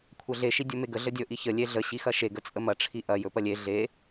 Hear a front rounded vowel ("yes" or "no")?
no